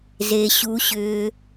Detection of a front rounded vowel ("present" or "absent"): present